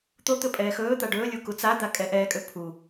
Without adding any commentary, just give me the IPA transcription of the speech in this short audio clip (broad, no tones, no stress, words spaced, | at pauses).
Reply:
t̪ot̪ɵ pʼɛːxɵːt̪a ɖɵːlʲu kut͡sad̪a kʼɛʔɛːkʼø pʰu